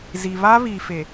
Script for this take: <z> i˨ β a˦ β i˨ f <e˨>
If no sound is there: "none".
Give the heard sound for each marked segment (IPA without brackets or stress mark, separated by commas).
z, e˨